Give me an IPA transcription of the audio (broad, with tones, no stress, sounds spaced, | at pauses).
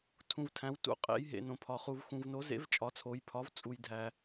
tʰ ũ˨ v tʰ æ̃˨˥ w t ṵ˨˥ qʼ ḛ˨˥ j ɦ ḛ˨ n õ˨ pʰ ɒ˨ χ u˨ v x ũ˨ v n o˨˥ z ḛ˨˥ v t͡ʃʼ ɒ˨˥ t͡sʰ o˨˥ j pʰ ɒ˨˥ v t͡sʼ u˨ j dʱ æ˨